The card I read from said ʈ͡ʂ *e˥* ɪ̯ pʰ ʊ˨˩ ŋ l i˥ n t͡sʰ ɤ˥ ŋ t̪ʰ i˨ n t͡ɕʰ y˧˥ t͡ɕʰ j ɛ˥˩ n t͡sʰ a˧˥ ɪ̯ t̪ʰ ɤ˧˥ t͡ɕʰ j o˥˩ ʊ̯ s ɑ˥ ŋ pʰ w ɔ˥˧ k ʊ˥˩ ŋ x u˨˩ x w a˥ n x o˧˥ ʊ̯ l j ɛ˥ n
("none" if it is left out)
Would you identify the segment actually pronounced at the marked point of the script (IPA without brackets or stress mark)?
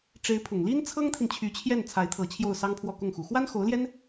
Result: e˧˥